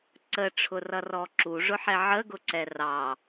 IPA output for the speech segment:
ǀ ə ʈ͡ʂʰ ʊ r ʌ r ɔ ǁ u ʐ ʊ ħ ɛ ʕ ə ɡ ʊ ǀ ɛ r ɑ

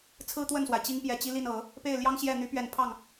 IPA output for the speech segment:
t͡sʰ ɹ̩˥ t̪ w ə˥˩ n s w a˩ ɪ̯ t͡ɕ i˥ ŋ p j ɛ˨˩ t͡ɕ i˥ l i˥˩ n ɤ˨˩˦ | p e˥˩ ɪ̯ l j ɑ˥ ŋ ɕ j ɛ˥˩ n̪ y˧˥ p ɥ ɛ˨˩ n pʰ ɑ˥˩ ŋ

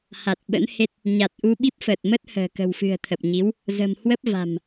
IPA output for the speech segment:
h a˨˩ t̚ ɓ ə̰˧˥ n h e˦˥ t̚ | ɲ a˨˩ t̚ ʔ u˧ ɓ i˦˥ p̚ f əː˨˩ t̚ m ə˦˥ t̚ h ə̤ː˨˩ k ə̤˨˩ w f ɨ̤˨˩ ə̯ t̪ʰ ə˨˩ p̚ ɲ i˨˦ w | z ə̤˨˩ m h w ə˦˥ p̚ v a̤˨˩ m

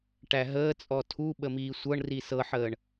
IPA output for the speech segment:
ʈ æ ɦ əː t͡sʼ ɔ tʰ u ɓ ə m iː sʷ ɤ ɳ r i s ɤ ħ əː ɳ

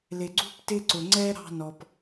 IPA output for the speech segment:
l ɪ˩ ɡ͡ǀ ṳ˥ p t ɪ˦ ǀ ʊ˩ ŋ͡ǀ ɛ˦ ɾ ɑ̤˦ n ɔ˨ p

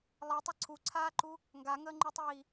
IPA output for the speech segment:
lˠ i tˤ ʌ ǀʰ u ǀʰ aː ǃ u | ŋ ɡ a ŋ əː ŋ͡ǃ u tˤ iː

